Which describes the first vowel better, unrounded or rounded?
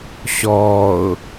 rounded